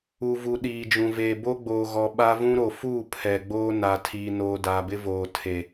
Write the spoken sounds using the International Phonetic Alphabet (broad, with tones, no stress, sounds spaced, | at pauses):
u˨ v u˨ ɗ iː˨ d͡ʒ ũ˨ v eː˨ b o˦ ɡ͡b oː˨ ɣ ɔ˨ ɓ a˦ v ũ˦ ɾ o˨ f uː˦˨ pʰ ɛ˨ ɡ͡b oː˦ n a˨ tʰ iː˨ n oː˨ d a˨ b ɪ˦ v oː˨ tʰ e˨